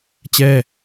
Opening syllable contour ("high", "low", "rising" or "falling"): falling